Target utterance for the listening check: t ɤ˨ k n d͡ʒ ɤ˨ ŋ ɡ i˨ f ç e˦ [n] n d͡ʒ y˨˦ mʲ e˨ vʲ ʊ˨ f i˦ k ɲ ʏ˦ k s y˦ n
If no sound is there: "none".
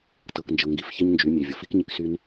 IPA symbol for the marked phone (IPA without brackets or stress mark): ɲ